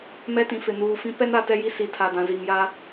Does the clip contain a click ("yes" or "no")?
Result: no